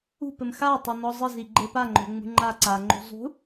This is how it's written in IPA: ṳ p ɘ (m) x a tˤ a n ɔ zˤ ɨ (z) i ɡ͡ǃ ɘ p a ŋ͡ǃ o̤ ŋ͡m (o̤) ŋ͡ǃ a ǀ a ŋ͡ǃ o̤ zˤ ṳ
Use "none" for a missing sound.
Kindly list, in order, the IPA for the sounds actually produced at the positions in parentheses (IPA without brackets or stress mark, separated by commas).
m, z, ṳ